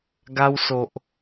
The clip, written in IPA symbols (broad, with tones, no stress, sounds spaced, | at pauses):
ɡ a˧ w s o˨ ʔ